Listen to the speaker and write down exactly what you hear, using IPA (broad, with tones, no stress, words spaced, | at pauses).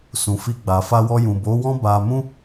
sũ˨fi˧ɡ͡ba˨ fa˧wɔ˧jũ˨ bo˨˦wɔ̃˦ba˧mũ˦